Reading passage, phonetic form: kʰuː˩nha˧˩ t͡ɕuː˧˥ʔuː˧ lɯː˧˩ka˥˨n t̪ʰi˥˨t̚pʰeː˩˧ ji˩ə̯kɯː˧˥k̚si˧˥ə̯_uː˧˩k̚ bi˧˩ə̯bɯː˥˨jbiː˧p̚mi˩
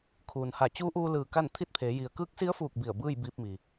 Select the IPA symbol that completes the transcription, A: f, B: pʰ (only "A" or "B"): A